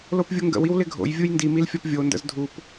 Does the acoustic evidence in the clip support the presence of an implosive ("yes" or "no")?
no